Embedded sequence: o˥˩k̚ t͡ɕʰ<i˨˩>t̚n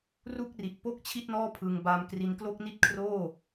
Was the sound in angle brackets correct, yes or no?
no